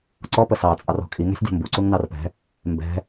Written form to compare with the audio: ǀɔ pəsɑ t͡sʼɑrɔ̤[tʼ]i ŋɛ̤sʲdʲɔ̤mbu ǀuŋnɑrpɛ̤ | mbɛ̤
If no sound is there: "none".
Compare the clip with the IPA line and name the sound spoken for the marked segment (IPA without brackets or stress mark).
kʼ